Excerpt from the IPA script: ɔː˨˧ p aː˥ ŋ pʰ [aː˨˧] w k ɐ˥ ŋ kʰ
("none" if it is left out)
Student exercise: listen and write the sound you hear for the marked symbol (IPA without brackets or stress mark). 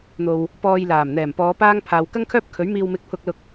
aː˨˧